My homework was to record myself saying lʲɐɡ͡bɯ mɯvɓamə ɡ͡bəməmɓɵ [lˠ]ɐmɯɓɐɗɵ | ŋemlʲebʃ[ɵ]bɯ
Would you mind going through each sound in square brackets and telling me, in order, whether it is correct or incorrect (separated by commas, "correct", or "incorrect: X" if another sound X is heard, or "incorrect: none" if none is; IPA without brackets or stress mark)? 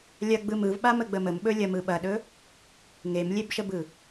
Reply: incorrect: lʲ, incorrect: ə